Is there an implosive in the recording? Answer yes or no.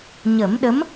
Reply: yes